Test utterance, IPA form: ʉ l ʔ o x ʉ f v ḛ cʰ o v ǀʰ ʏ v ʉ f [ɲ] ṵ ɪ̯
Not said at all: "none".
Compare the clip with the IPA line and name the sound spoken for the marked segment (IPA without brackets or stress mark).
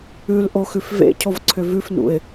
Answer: n